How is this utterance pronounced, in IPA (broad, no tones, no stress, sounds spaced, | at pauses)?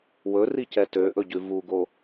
w ɵ r i c ɛ t ø ʔ ɵ ɟ ʉ v u ɡ o